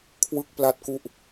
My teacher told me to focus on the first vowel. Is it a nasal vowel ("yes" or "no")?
no